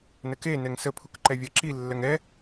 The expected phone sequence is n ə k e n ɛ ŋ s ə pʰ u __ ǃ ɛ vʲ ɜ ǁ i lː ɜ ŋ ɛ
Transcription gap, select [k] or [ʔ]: k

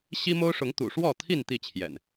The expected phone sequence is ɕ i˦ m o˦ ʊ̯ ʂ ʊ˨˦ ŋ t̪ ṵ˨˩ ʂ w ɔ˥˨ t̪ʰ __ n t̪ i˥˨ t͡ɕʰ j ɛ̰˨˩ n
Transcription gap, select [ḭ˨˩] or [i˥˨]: i˥˨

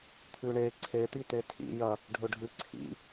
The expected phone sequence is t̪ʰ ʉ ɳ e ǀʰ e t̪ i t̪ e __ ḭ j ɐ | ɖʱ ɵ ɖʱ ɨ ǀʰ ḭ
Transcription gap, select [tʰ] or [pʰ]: tʰ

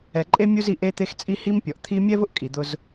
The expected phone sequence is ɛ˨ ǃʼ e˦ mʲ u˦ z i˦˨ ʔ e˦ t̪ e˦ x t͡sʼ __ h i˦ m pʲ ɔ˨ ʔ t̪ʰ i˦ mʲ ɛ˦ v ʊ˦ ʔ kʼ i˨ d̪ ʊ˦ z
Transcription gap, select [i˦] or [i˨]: i˦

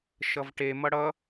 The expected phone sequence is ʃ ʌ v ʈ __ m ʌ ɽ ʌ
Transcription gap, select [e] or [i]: e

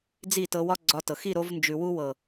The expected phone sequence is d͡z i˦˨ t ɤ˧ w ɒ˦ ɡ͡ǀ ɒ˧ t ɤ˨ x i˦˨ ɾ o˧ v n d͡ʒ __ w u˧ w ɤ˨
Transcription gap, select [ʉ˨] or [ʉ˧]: ʉ˨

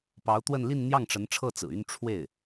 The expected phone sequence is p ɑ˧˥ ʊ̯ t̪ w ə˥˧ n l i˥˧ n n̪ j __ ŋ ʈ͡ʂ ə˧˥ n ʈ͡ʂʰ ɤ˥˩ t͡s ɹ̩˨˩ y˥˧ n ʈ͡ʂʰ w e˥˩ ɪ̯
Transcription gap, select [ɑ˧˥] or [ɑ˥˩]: ɑ˥˩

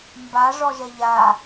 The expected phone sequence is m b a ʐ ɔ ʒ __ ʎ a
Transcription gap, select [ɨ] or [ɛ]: ɛ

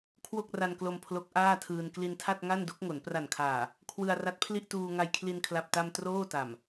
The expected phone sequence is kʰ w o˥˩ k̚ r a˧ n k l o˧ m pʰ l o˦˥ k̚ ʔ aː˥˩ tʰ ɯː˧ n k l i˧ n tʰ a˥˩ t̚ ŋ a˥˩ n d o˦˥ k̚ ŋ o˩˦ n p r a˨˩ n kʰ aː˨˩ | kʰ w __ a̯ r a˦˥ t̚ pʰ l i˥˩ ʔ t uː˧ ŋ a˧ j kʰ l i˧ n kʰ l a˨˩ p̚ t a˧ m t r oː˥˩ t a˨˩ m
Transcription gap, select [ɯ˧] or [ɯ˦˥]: ɯ˧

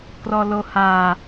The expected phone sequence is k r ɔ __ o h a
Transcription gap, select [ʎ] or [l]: l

